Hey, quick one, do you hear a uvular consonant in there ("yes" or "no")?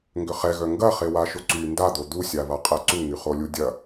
yes